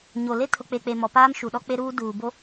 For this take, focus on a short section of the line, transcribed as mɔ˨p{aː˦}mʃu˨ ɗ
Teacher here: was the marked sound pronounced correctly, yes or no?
yes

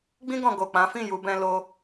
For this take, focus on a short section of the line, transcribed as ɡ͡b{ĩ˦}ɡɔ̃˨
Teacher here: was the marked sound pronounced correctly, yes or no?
no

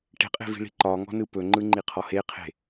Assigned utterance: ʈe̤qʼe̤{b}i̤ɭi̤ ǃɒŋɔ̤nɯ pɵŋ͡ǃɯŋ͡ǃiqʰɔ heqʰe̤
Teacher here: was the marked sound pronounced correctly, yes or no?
no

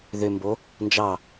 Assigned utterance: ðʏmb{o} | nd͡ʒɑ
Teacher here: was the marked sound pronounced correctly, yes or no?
yes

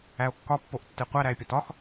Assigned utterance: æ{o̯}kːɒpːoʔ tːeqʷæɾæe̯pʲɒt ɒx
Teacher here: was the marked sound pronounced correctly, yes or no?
yes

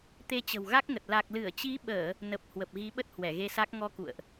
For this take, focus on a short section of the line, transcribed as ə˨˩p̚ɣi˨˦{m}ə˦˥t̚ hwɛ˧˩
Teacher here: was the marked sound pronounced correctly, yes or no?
no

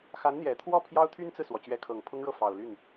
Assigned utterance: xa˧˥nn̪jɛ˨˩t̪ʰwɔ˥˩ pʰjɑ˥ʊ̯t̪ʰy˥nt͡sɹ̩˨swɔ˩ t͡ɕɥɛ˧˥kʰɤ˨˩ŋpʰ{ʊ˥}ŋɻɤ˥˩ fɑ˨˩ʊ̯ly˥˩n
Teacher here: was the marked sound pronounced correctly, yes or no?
yes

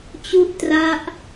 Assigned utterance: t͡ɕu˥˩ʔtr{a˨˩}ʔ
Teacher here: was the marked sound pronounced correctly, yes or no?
no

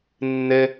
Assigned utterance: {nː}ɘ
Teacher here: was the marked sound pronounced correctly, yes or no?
yes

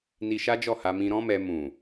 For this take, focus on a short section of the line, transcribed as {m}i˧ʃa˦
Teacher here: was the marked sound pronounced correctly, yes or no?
no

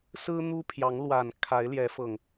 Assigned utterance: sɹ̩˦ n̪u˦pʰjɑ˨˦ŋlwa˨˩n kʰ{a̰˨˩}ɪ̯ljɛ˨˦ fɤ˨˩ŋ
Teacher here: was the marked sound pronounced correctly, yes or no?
no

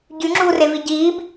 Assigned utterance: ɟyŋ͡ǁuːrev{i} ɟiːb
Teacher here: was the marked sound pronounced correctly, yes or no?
yes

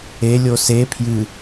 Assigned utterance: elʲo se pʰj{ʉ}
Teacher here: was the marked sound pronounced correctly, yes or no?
no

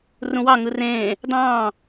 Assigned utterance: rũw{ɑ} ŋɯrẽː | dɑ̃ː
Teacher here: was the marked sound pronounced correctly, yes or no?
yes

